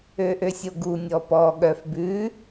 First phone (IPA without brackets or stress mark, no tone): ø